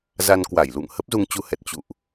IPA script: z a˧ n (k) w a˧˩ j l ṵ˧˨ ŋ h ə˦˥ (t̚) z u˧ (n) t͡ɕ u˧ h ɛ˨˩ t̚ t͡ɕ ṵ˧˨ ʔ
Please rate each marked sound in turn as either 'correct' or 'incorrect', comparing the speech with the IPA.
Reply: correct, incorrect: p̚, incorrect: ŋ

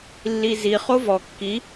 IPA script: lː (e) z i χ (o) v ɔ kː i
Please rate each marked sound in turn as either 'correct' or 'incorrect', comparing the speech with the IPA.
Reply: incorrect: i, correct

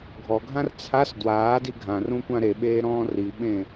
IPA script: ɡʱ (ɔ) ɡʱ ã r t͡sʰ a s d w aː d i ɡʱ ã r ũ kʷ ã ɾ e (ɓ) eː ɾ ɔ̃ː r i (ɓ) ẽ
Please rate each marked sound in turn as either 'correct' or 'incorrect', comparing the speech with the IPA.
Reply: correct, correct, correct

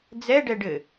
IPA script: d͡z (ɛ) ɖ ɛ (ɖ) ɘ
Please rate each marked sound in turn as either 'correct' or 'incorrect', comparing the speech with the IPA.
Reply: correct, correct

